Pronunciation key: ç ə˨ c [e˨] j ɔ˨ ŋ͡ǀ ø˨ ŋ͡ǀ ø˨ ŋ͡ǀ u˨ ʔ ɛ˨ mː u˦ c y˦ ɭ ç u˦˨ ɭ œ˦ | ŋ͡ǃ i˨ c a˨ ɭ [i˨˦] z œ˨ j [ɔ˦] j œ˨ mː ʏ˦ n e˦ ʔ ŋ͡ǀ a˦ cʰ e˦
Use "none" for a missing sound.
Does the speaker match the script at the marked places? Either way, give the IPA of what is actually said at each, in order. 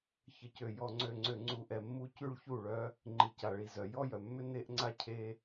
ø˨, i˨, ɔ˦

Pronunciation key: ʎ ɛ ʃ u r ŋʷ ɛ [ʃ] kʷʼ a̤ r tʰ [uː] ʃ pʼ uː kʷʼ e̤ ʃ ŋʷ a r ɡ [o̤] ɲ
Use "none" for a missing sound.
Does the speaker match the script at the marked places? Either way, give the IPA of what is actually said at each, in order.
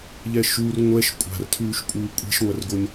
ʃ, ʉː, o

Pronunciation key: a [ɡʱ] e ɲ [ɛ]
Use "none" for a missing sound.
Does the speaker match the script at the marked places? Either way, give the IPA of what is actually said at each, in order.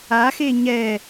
x, ɛ

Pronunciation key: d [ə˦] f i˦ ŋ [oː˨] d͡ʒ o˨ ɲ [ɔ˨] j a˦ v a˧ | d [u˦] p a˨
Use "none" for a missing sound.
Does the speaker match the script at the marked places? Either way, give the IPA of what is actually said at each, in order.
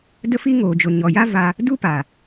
ə˦, oː˨, ɔ˨, u˦

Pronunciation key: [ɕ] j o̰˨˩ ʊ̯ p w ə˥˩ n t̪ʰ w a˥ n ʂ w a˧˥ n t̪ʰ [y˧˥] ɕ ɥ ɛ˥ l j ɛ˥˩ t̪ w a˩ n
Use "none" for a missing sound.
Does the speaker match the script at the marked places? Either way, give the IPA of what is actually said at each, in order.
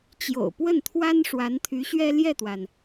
t͡ɕ, y˧˥

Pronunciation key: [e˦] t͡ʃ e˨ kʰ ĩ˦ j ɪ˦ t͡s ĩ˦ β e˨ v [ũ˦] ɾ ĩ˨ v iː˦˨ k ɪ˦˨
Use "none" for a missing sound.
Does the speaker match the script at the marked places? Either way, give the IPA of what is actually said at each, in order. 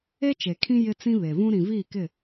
e˦, ũ˦

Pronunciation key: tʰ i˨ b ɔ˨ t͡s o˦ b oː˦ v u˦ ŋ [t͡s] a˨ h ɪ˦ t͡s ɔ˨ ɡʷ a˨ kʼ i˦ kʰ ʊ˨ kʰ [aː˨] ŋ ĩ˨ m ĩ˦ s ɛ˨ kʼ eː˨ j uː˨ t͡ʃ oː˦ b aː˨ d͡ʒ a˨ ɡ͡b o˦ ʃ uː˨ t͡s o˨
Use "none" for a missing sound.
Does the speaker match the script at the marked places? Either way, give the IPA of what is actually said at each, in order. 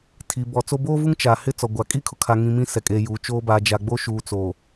t͡ʃ, a˨

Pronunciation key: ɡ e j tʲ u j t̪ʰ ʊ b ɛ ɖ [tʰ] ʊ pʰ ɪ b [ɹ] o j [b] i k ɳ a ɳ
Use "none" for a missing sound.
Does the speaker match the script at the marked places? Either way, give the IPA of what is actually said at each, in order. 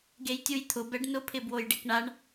n, w, ɖ

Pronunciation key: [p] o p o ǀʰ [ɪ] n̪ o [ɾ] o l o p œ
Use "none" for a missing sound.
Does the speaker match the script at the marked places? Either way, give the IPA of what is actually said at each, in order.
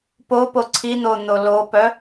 p, i, n̪

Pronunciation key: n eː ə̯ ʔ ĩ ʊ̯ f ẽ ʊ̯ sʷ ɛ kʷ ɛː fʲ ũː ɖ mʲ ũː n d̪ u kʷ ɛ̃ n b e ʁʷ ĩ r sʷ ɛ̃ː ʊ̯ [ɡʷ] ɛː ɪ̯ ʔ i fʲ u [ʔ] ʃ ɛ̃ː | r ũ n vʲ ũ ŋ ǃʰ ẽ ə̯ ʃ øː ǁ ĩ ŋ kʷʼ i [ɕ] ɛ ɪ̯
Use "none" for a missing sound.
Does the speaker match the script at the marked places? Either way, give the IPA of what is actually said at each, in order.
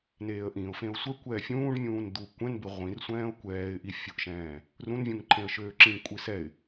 kʷ, ʔ, s

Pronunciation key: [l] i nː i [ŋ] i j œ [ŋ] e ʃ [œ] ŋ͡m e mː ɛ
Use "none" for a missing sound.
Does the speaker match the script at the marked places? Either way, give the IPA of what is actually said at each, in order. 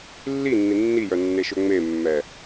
lː, nː, nː, ø

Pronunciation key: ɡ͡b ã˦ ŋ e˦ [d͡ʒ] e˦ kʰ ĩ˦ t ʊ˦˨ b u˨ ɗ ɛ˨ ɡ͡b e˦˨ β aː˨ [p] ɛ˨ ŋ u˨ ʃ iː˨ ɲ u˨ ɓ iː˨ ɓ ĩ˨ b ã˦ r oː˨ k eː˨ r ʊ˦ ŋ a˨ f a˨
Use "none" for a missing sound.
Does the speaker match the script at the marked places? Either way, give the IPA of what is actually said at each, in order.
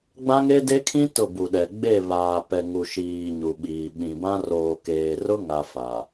d, p

